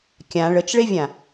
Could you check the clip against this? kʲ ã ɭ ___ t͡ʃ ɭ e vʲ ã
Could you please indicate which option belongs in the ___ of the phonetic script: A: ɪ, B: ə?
B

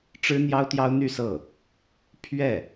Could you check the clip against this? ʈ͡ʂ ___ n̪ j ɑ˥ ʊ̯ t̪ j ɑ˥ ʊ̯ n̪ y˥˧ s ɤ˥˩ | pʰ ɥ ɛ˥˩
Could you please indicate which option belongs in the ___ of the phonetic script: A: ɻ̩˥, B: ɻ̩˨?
A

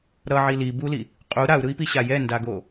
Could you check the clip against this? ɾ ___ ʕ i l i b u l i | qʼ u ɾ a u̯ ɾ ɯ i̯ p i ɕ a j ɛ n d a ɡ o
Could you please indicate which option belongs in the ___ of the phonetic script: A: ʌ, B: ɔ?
A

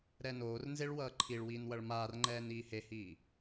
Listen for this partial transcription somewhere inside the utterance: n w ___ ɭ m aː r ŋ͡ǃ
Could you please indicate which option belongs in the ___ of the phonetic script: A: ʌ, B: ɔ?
A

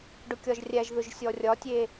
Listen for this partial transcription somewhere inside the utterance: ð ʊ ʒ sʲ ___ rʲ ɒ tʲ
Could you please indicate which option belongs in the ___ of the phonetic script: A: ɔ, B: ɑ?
A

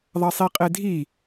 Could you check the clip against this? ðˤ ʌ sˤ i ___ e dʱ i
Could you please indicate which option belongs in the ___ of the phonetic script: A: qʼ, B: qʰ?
A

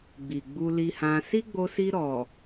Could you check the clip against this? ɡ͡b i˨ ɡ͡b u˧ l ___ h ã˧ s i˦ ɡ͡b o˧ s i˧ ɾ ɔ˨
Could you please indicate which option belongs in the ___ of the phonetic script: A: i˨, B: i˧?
B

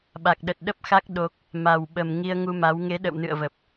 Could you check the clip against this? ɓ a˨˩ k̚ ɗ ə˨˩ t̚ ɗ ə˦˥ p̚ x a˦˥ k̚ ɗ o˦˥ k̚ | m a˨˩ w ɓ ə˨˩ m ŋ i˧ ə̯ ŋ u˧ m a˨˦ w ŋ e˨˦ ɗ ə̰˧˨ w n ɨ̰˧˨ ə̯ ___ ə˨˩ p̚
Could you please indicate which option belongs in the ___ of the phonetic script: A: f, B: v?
B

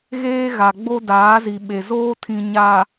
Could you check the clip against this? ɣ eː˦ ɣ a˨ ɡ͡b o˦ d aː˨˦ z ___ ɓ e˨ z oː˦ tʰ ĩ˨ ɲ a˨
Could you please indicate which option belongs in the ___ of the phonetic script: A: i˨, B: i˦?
A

